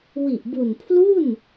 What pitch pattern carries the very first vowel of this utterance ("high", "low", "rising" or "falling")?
low